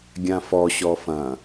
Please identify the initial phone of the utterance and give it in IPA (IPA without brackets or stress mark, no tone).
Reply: ɡʲ